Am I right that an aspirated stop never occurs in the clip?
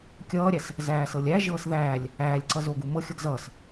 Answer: yes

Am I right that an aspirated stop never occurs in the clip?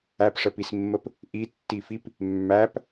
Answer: yes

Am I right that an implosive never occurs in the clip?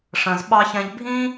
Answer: no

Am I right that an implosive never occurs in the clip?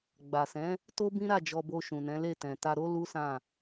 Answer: yes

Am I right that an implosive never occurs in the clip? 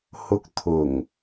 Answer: yes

